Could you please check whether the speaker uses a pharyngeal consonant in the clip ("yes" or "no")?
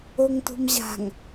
no